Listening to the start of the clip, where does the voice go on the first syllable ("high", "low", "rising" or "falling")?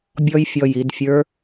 high